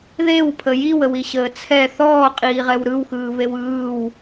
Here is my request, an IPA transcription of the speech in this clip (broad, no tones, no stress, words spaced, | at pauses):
ðewpʰə jiwəwiɕəː t͡sʰɛ θɔːqʼiːʁɛw ɾɯwxɯːβew ɯːw